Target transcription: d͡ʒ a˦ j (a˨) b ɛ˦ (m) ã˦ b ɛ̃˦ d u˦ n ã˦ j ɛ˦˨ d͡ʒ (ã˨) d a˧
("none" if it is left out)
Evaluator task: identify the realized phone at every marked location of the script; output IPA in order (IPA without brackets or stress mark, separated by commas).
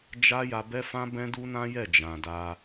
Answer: a˧, f, ã˨